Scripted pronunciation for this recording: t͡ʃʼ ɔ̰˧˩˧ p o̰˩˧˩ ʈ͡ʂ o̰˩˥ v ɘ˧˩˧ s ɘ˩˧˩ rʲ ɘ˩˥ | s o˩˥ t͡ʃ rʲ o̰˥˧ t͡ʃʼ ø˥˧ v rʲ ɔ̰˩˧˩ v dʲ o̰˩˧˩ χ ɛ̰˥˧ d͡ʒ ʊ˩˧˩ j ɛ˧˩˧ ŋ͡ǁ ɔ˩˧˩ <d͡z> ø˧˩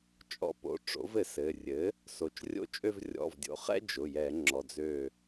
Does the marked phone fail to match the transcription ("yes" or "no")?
no